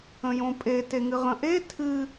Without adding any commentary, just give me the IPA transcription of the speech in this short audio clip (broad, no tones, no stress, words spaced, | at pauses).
ə̃jõpʼe teŋɨʁə̃ʔe tʰɨ